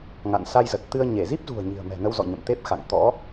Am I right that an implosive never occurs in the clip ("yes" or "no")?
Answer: yes